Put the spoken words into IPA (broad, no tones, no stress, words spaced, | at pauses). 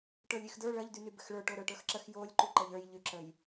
ʈə˞lʲyxdə˞ ɭɐʎ dynybɘxɭə˞ ʈoɾə˞ʈə˞xǁəx jolʲ ǃyǃɐʎə˞j ʎyǁəj